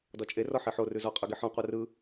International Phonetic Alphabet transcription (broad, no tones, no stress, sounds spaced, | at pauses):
d ɔ t͡ʃʼ e r ɔ ħ i ħ o r ʉ z ɔ qʼ ɯ ɡ i ħ ɔ̃ qʷ œ r ɯ